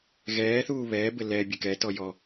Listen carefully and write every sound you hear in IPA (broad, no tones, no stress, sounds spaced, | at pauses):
ɣ ɛː θ uː β ɛː b ɘ l ɛ bʲ ɘ k ɛ t ɔ j ɔ